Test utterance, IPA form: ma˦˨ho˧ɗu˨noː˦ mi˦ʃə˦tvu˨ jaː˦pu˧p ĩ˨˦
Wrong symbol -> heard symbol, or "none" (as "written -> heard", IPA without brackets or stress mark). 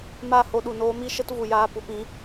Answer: none